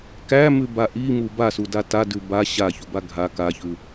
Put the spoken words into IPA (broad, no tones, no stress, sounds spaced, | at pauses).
k æ m ʉ b a ʔ i m u b a s u d a t a d ʉ b a ɕ a ç u b a ɡʱ a k a ç ʉ